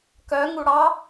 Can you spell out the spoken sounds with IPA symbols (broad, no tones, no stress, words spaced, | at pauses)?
kœŋu ɽɑ